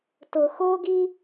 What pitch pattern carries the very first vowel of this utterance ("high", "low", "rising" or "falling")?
low